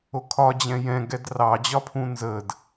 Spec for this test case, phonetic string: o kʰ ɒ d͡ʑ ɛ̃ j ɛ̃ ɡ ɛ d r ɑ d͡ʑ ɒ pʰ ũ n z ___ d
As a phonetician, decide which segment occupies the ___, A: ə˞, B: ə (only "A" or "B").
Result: B